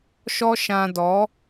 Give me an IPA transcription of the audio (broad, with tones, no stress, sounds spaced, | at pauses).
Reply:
ʃ ɔ˦ ʃ ã˧ d ɔ˨˦